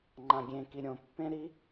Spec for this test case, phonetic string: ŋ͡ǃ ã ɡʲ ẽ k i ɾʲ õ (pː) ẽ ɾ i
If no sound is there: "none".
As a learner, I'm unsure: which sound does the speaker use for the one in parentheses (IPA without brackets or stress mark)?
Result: pː